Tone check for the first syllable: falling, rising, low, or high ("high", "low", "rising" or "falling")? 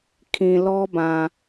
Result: low